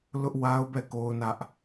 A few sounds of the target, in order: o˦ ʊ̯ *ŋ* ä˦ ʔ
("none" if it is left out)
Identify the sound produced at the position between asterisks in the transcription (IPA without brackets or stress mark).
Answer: n